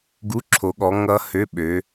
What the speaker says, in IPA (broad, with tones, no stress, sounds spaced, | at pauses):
ɡ u˧˥˧ ǁʰ o˨˦ ɠ ɔ˨˦ ŋ ʌ˦˥ h ø˧˥˧ ɓ ø˨˦